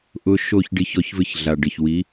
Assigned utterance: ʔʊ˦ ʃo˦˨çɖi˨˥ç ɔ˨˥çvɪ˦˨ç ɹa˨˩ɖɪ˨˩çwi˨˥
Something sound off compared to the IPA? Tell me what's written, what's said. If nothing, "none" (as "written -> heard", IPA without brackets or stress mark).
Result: ɹ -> ɮ